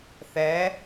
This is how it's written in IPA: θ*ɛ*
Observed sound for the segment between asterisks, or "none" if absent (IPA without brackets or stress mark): ɛ